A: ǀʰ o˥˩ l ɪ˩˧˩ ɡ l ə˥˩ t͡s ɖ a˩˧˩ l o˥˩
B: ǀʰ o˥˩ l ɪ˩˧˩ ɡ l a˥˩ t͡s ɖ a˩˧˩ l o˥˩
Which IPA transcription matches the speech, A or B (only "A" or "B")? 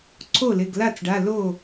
B